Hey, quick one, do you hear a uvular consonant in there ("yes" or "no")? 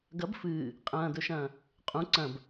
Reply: yes